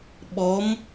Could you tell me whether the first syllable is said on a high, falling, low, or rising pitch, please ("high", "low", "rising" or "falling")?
rising